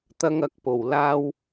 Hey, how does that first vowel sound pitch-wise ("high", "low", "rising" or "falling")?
high